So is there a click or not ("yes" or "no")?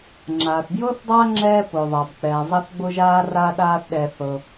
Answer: yes